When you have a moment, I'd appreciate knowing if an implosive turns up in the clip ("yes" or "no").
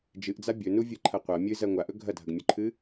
no